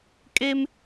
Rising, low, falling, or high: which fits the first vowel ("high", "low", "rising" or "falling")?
high